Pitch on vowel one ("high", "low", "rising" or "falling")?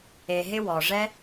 low